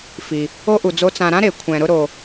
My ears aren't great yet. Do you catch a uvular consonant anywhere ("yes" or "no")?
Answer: no